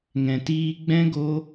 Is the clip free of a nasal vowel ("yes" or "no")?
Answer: no